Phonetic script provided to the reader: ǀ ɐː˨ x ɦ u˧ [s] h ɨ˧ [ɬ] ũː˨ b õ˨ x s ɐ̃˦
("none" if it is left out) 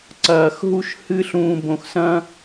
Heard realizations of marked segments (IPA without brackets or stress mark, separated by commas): ʃ, ɬ